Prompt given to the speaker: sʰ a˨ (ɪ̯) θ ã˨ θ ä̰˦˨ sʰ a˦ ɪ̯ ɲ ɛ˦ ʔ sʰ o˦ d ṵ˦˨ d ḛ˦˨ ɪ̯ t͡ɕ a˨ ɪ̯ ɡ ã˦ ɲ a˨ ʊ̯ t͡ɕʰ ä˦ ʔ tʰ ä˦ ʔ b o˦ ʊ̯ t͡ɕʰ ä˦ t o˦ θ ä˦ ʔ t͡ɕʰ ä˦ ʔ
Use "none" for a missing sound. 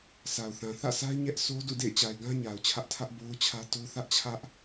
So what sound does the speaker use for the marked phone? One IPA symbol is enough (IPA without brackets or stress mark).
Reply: ʊ̯